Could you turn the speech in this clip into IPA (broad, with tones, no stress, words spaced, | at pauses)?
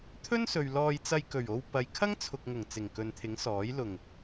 t̪ʰɵ˥nsɵ˨ɥ lɔː˧jt͡sɐ˧jkɵ˨˩ɥ o˧w pɐ˨jkʰɐ˥ŋt͡sʰʊ˨k̚ŋʊ˨˩ŋ t͡sɪ˨˩ŋkɵ˨nt̪ʰɪ˨˥ŋsɔː˨˥j lʊ˨˩ŋ